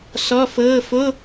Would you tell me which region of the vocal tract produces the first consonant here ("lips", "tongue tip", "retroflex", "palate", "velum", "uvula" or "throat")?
tongue tip